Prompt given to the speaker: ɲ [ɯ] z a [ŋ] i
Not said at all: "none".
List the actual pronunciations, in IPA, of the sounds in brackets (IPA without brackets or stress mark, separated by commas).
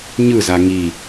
ɯ, ŋ